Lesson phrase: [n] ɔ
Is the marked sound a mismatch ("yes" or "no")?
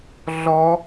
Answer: yes